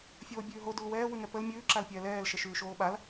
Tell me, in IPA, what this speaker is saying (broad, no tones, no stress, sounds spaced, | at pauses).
fʲ oː bʲ ʉː ɦ o d u l w ɛː w ʉ ŋ ɛ p ə l mʲ ʉː ǁ a l pʲ ɛː l ɛː l ʃ ə ʃ ʉː ʃ oː ɓ a l